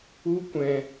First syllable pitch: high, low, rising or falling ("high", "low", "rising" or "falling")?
high